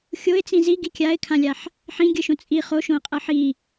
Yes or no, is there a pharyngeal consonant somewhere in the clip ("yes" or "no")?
yes